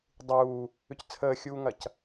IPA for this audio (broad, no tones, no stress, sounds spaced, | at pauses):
dˤ uː | ʏ c t͡sʰ əː xʲ uː ŋ ɐ c